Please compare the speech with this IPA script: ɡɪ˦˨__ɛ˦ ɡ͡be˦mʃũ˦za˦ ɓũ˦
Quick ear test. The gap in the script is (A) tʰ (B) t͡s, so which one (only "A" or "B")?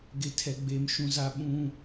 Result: A